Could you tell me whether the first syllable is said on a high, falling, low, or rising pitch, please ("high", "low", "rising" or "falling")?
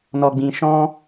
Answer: low